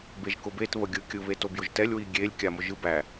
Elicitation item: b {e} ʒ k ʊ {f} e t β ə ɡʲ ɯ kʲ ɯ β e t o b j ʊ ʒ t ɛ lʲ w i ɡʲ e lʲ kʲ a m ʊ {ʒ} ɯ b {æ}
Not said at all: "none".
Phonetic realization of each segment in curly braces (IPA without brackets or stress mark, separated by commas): e, b, ʒ, æ